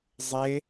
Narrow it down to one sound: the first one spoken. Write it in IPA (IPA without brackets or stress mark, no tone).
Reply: zˤ